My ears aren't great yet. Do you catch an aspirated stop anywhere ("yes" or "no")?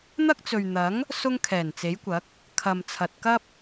yes